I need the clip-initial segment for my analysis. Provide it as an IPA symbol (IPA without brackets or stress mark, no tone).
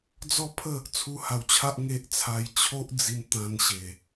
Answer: d͡z